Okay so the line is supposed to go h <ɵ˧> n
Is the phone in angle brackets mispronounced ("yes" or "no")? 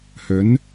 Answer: yes